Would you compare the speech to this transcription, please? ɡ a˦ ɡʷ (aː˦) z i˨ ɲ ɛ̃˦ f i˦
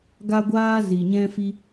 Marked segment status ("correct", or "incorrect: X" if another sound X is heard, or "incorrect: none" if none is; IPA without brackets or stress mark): correct